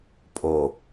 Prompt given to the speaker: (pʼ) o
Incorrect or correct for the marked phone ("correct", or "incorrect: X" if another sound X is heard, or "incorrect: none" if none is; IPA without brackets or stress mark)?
correct